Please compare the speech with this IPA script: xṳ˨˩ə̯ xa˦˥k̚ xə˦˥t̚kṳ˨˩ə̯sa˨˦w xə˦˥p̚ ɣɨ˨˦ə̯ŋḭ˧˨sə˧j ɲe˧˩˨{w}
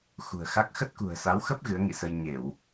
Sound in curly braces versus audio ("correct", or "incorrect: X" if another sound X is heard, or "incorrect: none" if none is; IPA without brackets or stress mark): correct